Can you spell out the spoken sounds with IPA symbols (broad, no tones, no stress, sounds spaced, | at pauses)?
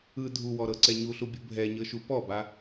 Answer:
ɯ dʱ u w ɔ ɾ ɤ ǀ ɛ ɲ u ɬ u bʲ u bʱ ɛ ɲ ɤ ʃ u p ɔ b a